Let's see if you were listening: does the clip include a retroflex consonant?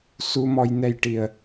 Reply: yes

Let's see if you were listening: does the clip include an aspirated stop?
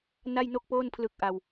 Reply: yes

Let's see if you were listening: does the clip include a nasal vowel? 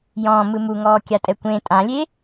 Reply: yes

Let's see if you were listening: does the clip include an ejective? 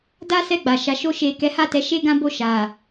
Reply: no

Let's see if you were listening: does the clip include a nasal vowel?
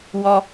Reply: no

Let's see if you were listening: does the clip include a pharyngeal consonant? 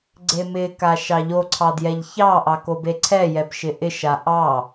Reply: no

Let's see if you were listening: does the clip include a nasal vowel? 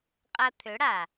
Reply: no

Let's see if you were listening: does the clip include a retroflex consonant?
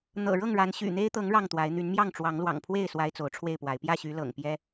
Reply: yes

